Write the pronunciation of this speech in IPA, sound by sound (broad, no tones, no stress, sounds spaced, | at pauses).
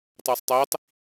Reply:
tˤ ø sˤ tˤ i tˤ